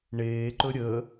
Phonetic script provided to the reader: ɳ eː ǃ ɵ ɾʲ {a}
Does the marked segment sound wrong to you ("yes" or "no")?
yes